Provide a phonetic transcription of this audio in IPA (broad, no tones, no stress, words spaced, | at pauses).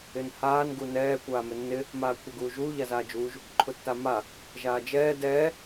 ɪnhaːn ɡunɛː kʷaːmɪnːɪ | maːkʷʰɛɡuːʒuː ʎazaːd͡ʒuːʒ | ǃʰʊtːama | ʒaːd͡ʒɛː dɛː